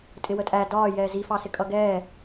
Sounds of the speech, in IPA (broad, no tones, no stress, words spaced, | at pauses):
tʼɪwətʼæ dɒː jɛːzifɑsɪ kʼʌɡɛː